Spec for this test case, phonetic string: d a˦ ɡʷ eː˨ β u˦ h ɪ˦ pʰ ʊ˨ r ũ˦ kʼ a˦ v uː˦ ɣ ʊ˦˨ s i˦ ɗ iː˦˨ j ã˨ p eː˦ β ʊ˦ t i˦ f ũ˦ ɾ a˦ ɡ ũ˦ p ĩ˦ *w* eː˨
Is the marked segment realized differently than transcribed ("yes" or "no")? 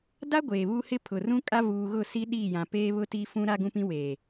no